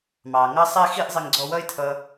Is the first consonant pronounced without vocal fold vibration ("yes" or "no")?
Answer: no